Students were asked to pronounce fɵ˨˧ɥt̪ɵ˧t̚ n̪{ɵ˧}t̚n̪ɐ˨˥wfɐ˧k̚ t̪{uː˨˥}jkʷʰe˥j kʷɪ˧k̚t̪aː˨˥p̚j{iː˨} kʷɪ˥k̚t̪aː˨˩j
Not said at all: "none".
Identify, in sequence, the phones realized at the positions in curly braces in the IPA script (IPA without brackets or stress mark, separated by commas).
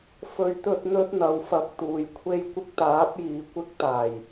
ɵ˥, uː˨, iː˨